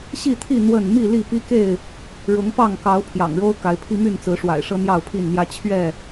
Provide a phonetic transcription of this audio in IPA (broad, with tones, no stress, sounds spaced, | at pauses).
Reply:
ɕ i˥˨ t̪ʰ i˥˨ n̪ w ə˥˨ n m i˥˨ l i˥˨ p i˦ k e˥˨ ɪ̯ | ɻ ʊ˨˦ ŋ p ɑ˥˨ ŋ k ɑ˨˦ ʊ̯ pʰ j ɑ̰˨˩ ŋ ɻ o˦ ʊ̯ k a˨˦ ɪ̯ pʰ i˦ m y˥˨ n t͡s ɹ̩˨˦ ʂ w a̰˨˩ ɪ̯ ʂ ɤ˦ n̪ j ɑ˥˨ ʊ̯ pʰ i˥˨ n n̪ j ä˦ t͡ɕʰ ɥ ɛ˥˨